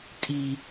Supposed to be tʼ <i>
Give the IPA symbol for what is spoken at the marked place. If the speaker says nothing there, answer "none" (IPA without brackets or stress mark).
i